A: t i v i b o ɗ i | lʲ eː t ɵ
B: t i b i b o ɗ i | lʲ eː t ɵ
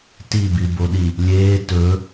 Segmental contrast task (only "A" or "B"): B